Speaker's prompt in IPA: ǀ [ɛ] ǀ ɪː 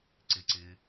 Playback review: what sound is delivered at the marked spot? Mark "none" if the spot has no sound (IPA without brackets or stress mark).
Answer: ɪ